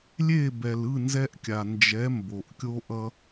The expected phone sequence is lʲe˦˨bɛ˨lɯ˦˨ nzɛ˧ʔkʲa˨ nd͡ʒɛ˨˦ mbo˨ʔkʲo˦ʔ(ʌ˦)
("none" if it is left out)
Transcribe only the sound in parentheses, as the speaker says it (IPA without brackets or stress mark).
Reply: ʌ˦